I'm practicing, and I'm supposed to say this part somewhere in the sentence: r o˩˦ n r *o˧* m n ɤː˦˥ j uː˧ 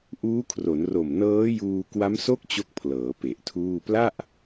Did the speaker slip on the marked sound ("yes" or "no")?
yes